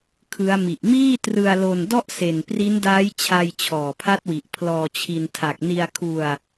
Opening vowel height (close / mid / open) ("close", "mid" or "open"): close